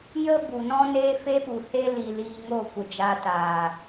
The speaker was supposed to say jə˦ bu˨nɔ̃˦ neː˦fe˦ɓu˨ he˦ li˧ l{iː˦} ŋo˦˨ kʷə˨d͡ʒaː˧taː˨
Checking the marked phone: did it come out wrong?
yes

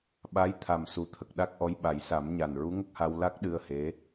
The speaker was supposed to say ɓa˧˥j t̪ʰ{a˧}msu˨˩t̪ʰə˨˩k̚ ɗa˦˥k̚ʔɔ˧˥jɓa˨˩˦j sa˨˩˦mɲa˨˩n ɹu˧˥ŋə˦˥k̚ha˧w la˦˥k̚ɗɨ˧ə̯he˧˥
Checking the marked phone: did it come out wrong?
yes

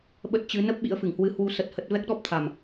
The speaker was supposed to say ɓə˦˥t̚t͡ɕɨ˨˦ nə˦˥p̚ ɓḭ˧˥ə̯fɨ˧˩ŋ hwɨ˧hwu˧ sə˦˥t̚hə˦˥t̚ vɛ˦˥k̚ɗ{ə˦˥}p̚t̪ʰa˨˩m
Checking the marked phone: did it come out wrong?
yes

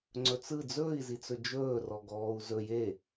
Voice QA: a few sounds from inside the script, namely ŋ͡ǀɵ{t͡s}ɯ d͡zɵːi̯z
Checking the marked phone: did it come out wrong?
no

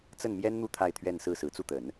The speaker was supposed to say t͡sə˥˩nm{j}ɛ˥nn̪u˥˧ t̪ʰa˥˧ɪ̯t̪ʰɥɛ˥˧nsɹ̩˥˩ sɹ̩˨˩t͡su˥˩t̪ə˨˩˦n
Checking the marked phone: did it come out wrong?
no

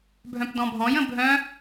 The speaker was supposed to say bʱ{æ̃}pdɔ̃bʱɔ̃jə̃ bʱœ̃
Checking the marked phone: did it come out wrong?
yes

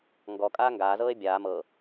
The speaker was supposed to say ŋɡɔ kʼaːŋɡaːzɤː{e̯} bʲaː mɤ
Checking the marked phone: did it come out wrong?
no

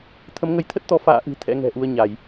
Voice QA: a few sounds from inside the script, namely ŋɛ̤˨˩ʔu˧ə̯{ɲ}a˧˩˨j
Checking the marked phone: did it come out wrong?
no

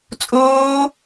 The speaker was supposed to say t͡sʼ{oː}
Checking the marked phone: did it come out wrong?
no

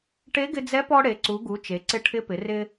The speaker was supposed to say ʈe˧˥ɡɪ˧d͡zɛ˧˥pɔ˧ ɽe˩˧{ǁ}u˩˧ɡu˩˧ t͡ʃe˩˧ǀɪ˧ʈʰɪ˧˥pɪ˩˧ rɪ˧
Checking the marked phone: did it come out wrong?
yes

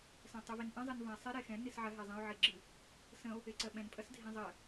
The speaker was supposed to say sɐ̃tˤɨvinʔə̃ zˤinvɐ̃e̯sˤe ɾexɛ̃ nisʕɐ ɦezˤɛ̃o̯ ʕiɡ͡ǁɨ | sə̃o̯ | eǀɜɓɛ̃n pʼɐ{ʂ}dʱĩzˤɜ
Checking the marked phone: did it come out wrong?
yes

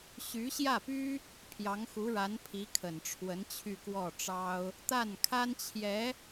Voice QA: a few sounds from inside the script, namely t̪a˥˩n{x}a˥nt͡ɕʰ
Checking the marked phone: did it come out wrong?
yes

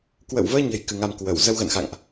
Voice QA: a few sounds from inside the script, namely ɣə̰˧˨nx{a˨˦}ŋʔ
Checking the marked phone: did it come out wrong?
yes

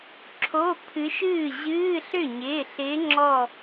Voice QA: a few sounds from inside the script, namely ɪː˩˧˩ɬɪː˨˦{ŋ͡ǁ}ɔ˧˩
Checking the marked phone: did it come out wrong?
no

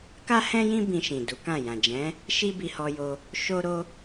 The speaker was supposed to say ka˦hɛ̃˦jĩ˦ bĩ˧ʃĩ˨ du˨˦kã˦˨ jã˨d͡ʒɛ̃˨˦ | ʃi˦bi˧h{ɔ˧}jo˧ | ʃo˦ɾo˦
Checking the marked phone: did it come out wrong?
no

